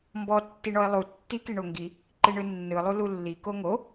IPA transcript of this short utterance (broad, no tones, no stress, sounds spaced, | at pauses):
m b ɔ tː i ɳ ɔ e̯ lˠ u tː i k i ɳ o ŋ ɡ i | ǃ i ɳ ɯ nː ɯ lˠ u l u lː i k o ŋ o